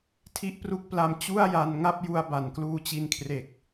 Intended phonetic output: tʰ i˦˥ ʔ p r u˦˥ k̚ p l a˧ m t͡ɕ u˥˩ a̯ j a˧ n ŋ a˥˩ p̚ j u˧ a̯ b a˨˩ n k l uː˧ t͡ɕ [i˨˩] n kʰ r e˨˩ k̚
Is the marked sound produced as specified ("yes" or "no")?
no